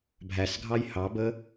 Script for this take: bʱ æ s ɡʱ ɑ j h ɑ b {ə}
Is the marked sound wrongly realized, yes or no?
no